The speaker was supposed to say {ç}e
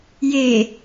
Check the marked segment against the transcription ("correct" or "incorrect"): incorrect